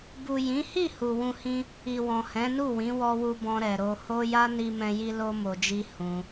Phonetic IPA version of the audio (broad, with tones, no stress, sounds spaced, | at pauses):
b u˨ j ĩ˨˦ h i˦˨ h u˨ w ũ˧ h ĩ˦ | i˨ w ɔ̃˨ h ɛ̃˨˦ n u˦˨ w ĩ˨˦ w ɔ˧ w u˧ b ɔ̃˧ ɾ ɛ˨ ɾ o˧ h o˦ j a˦ n i˧ m ɛ̃˧ j i˧ l o˦ m o˧ d͡ʒ i˦ h ũ˧